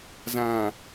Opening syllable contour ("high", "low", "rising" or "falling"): low